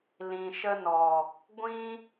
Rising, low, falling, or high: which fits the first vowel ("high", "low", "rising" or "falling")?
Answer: low